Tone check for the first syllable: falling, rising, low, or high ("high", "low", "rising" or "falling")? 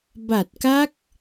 low